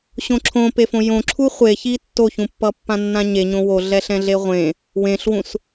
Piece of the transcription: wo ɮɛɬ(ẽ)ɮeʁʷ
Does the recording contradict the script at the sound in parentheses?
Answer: yes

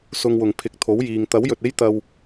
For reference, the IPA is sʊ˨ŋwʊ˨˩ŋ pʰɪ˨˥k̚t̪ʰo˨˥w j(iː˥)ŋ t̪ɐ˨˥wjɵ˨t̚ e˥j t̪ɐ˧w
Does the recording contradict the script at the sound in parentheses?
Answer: yes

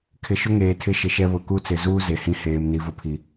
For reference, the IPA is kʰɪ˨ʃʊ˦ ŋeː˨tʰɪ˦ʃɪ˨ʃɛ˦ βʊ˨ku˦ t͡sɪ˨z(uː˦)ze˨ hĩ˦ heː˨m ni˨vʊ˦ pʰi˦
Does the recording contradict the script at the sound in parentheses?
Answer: no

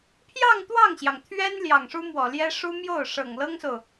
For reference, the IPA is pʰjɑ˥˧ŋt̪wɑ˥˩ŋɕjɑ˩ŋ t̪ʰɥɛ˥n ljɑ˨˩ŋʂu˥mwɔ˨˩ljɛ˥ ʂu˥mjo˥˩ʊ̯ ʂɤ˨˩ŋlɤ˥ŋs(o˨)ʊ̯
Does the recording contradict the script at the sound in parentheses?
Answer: no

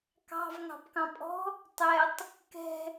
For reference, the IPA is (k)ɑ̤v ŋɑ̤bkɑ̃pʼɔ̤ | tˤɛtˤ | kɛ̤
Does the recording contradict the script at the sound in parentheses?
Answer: no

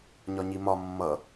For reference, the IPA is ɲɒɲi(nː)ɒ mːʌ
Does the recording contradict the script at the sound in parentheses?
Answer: yes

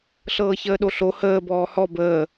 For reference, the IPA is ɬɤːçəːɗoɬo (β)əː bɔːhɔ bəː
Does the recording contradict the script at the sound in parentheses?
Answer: yes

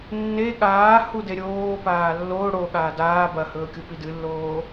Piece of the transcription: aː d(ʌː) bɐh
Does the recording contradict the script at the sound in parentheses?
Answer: yes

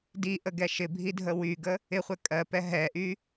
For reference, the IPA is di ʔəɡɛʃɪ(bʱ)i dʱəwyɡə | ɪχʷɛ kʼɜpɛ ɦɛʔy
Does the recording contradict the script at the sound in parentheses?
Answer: no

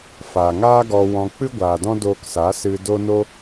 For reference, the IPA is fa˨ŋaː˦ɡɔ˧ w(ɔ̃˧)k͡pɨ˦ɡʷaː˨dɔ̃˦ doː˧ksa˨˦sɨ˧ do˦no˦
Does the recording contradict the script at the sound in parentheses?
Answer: no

